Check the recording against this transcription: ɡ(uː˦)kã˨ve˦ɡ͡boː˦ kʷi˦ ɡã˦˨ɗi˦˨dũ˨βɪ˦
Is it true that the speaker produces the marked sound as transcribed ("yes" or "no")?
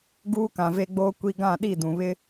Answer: yes